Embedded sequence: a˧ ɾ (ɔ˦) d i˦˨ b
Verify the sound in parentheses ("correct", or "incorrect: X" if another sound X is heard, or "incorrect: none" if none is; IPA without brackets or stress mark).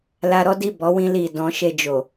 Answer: correct